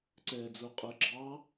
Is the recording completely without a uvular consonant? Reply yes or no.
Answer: no